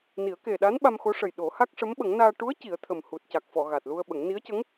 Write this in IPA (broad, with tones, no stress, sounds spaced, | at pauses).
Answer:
n i˨˩˦ ə̯ k e˨˩ ɗ a˧˥ n ɓ a˧ m x o˧˥ ʂ ə˨˩ j ɗ o˨˩˦ h a˦˥ k̚ ʂ ə˧˥ m ɓ ə˨˩˦ ŋ n aː˧ ʈ u˧˥ ə̯ c i˨˩˦ ə̯ t̪ʰ ə˨˩ m h u˨˩ t̚ c a˨˩ k̚ f ɔ˨˩˨ ɣ a˨˩ t̚ l u˧ ə̯ ɓ ə˨˩˦ ŋ n i˧˥ ə̯ c ə˧˥ ŋ